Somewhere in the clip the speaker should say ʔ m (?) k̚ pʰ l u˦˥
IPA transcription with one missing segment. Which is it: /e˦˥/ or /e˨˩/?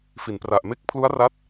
e˦˥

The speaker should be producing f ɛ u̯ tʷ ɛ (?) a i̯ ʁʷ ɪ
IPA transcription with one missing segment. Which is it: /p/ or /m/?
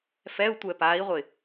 p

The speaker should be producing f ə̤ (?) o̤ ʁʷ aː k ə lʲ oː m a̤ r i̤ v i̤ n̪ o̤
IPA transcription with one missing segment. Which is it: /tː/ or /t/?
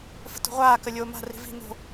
t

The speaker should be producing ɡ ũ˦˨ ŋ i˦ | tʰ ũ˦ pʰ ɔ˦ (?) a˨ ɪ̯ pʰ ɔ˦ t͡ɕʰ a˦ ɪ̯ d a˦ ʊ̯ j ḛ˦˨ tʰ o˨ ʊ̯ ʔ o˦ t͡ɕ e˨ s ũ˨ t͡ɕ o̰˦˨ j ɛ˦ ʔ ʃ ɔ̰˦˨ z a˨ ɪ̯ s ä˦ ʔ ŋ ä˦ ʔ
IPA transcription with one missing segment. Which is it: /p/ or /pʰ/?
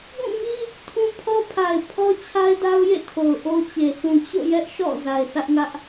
pʰ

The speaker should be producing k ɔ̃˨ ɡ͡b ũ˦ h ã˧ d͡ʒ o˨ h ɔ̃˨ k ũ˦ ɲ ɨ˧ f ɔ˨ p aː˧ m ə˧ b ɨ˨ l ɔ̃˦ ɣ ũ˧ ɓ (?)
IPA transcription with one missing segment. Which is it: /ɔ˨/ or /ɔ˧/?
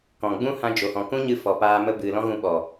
ɔ˨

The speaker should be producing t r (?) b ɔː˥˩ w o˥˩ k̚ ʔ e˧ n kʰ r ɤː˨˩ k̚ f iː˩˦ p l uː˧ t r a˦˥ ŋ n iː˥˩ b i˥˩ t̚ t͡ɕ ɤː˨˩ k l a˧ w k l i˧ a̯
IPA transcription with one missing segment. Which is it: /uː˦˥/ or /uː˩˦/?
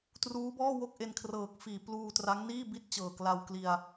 uː˦˥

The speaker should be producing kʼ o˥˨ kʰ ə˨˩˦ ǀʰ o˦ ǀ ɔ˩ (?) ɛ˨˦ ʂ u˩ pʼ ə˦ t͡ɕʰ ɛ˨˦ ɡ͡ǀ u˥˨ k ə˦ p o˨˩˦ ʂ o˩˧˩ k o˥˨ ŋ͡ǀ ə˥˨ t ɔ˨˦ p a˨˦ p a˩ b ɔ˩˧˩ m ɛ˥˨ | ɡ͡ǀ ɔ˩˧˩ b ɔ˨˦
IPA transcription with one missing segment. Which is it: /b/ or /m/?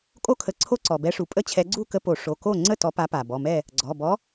b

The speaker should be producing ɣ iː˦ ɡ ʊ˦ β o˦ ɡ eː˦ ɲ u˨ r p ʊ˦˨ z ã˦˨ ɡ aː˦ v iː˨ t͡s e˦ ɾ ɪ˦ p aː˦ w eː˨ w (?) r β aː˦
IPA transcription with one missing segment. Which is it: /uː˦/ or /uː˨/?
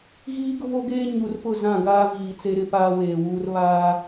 uː˦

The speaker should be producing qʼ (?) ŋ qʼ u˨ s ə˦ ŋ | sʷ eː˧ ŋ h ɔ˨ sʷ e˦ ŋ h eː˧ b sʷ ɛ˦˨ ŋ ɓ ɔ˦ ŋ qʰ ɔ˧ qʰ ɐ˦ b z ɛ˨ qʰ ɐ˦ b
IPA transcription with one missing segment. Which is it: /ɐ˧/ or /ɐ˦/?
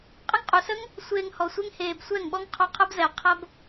ɐ˦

